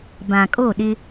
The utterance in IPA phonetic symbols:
b ã˨ kʼ o˦˨ ɗ ɪ˦

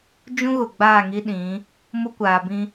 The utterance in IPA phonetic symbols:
d͡ʒ ũ˦ ɣ ʊ˨ ɡ͡b aː˦˨ ŋ i˦ ɗ ĩ˨˦ | m ʊ˦ kʷ aː˨ b ĩ˦

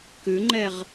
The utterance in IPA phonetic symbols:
k ʉ ŋ͡ǃ ɛ ʁ

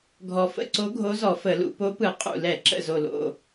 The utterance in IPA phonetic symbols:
ɡʱ ɔ˨˩ f ə̰˦˨ ǀ o˧˥ ɡʱ o˧˥ z ɔ˧˩˧ f ə˧˩˧ l ṵ˧˩˧ p o˧˥ p ɯ˧˩˧ qʼ ṵ˨˩ l ɛ˧˩˧ ǁ ə̰˨˩ z o˨˩ l o̰˨˩

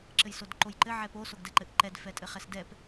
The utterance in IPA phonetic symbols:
ǁ ɘ j s o d ǃ o j ǃ ɘ ʕ ɛ p o s o ɡ d ɛ ǃ ɘ ʔ ǃ ɛ d f ɛ tʼ ɘ χ ɛ s d ɛ p

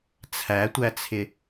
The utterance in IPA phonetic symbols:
t͡sʰ æ tʷ æ t͡sʰ ɪ

